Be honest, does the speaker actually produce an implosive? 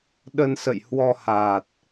yes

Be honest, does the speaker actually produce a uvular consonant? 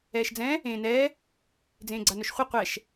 yes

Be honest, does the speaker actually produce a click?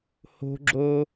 yes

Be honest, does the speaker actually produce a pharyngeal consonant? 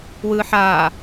yes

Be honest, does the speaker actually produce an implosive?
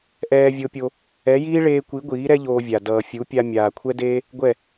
no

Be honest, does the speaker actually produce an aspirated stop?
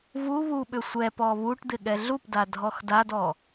no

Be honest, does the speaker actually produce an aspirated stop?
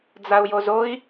no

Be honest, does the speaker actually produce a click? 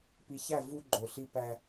yes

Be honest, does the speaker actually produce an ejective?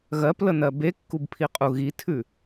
yes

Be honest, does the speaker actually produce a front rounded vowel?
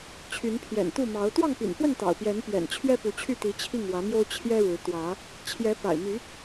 yes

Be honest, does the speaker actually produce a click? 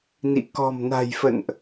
no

